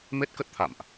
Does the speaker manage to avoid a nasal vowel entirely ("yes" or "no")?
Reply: yes